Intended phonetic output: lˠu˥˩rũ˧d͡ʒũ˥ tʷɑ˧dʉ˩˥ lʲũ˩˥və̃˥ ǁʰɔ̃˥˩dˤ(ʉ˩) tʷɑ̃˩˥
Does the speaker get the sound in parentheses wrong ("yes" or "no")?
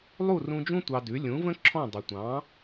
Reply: no